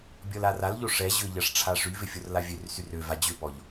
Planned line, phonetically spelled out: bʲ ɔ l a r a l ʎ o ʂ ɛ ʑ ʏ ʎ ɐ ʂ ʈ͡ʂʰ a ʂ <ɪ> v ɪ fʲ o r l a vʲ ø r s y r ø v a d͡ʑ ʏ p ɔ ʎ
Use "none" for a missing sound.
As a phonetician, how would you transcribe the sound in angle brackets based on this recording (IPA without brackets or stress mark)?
y